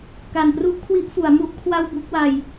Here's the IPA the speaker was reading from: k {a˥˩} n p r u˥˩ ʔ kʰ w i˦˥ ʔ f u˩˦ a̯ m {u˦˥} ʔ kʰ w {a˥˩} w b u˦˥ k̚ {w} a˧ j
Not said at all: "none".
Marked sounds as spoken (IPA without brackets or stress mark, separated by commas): a˨˩, u˥˩, a˥˩, w